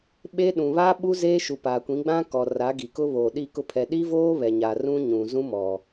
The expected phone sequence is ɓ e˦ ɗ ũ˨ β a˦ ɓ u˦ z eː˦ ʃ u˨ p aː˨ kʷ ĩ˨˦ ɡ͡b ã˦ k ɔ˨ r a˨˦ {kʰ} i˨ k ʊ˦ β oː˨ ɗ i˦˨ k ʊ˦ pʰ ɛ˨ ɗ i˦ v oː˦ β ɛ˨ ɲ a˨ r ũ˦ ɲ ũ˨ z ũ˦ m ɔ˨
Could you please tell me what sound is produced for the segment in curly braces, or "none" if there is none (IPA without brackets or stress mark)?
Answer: ɡ